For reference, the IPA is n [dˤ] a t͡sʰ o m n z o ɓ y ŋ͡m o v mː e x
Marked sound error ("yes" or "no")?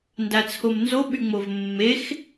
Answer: yes